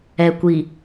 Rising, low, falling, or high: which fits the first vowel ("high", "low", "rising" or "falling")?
low